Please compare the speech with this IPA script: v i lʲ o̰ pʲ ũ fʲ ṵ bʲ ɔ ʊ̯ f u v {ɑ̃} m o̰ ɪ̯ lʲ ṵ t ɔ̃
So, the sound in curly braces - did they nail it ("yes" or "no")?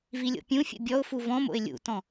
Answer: no